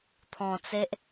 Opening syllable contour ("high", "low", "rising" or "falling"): low